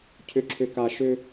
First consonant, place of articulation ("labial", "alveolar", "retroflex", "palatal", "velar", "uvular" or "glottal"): palatal